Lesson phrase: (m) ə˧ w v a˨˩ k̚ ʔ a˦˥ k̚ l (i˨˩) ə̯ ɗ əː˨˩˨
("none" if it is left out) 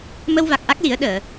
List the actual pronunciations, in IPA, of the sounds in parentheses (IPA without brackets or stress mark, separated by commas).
m, i˨˩˦